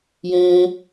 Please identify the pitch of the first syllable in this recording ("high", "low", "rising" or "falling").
high